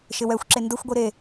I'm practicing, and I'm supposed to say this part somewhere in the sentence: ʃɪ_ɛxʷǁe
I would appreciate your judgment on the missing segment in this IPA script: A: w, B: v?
A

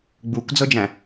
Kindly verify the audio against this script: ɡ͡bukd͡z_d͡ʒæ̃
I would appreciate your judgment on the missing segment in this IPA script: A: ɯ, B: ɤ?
B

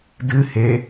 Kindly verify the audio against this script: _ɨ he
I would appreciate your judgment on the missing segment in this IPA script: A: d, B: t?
A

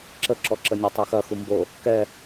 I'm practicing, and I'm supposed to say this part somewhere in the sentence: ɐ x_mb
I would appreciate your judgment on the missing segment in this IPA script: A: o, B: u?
B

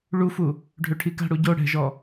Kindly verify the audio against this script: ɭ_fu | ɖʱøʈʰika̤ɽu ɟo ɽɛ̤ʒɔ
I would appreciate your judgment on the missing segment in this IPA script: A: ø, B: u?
B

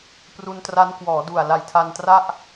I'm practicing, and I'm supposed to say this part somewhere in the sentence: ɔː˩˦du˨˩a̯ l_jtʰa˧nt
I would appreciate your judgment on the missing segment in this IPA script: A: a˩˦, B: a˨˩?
B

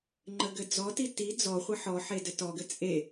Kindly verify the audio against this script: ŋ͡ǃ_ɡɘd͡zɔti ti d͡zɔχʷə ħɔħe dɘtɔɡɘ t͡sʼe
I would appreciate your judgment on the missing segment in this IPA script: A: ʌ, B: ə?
B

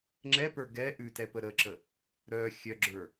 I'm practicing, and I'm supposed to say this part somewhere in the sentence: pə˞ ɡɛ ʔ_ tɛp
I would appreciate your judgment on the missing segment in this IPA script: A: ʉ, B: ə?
A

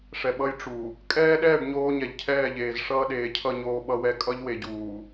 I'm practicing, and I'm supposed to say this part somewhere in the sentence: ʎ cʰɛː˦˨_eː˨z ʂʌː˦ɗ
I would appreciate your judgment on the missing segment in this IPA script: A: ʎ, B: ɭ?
A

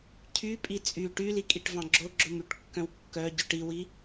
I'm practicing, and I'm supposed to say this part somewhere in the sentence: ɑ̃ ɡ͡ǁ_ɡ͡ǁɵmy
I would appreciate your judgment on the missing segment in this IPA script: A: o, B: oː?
A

